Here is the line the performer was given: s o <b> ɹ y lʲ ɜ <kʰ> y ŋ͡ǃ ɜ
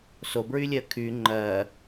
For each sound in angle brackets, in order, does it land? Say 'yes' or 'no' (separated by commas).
yes, yes